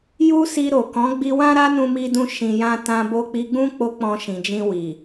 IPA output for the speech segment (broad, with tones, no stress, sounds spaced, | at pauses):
j u˦ s i˧ ɾ o˨ k ɔ̃˨˦ ɡ͡b i˧ w ã˦ ɾ a˦ n ũ˧ m i˧ d ũ˦ ʃ ĩ˧ j ã˦ t ã˧ b o˧ k͡p i˧ ɡ͡b ũ˦ k͡p o˦ k͡p ɔ̃˧ ʃ ĩ˨ d͡ʒ ĩ˧ w i˨